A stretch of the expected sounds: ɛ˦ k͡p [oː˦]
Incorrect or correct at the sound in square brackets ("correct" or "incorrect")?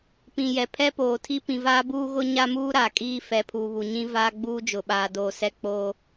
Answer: correct